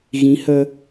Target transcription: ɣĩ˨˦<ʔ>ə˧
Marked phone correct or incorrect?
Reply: incorrect